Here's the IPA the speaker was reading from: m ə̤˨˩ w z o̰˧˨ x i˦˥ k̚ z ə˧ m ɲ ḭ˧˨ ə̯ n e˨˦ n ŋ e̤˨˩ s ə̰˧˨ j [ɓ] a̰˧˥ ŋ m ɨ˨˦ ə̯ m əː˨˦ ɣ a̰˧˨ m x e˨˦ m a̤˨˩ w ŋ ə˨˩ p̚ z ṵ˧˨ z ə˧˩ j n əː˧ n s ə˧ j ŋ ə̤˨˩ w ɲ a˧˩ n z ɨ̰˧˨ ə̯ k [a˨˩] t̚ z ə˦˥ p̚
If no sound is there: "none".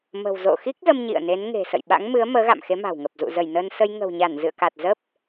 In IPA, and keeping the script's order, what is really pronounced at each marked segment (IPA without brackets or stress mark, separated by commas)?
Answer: ɓ, a˨˩